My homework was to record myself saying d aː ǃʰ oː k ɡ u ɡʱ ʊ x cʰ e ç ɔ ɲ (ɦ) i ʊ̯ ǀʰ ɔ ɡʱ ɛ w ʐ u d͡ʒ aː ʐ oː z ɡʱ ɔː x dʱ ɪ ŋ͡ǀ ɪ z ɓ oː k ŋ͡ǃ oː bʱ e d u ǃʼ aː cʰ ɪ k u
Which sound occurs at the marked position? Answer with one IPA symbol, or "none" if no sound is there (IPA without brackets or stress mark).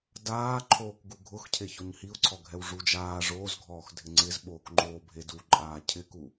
h